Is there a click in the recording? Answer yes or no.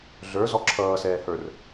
yes